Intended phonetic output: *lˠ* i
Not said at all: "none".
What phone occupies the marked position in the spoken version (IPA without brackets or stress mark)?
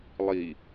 lˠ